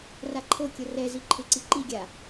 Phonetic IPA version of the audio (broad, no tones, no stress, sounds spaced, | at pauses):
r a ǃʰ ɤ kʲ ɤ r ɛ z i ǃʰ ɪ ǀ i ǃ i ɡʲ a